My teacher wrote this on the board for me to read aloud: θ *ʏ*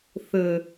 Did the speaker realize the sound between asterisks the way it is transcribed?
no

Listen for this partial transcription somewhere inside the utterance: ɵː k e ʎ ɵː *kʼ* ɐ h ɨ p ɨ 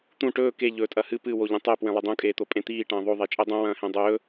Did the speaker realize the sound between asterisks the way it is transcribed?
no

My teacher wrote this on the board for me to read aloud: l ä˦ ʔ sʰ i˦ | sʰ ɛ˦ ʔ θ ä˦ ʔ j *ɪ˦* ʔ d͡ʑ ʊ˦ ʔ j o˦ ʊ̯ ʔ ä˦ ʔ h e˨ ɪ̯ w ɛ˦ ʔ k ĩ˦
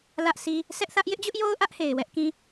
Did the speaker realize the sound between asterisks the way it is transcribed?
yes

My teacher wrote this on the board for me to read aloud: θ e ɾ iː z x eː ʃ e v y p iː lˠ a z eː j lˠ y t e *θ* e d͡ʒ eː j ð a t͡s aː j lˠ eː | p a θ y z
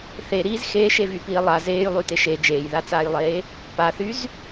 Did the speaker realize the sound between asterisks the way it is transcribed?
no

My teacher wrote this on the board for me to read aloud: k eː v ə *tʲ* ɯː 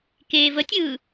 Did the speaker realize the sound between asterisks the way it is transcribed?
yes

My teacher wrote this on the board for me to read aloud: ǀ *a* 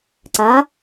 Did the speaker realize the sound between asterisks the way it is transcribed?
yes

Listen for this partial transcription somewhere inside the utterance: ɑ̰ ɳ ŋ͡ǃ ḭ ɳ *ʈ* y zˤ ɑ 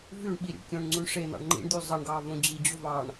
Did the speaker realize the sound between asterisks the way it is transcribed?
no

